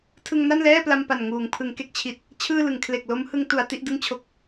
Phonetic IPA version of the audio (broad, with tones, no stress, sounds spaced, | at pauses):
tʰ ɯ˧ ŋ n a˥˩ n l ɛː˥˩ p l a˧ m p a˨˩ n ŋ uː˩˦ ŋ pʰ ɯ˩˦ ŋ k e˦˥ k̚ t͡ɕʰ i˨˩ t̚ | t͡ɕʰ ɯː˥˩ l ɯ˩˦ ŋ kʰ l e˨˩ k̚ l o˦˥ m h ɯ˧ ŋ t u˩˦ a̯ t i˦˥ ʔ d ɯ˥˩ ŋ t͡ɕʰ o˦˥ k̚